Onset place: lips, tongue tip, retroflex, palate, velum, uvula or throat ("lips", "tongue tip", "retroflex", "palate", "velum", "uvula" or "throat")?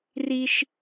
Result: tongue tip